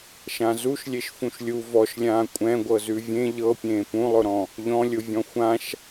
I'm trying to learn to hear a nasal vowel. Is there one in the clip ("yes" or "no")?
yes